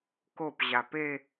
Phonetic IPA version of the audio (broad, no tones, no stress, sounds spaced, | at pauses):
k o p ʑ a p e